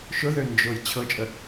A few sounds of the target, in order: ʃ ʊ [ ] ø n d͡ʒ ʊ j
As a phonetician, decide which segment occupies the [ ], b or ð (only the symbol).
ð